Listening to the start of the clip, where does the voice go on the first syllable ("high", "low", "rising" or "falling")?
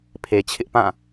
low